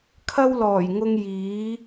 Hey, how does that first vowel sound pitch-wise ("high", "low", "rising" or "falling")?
high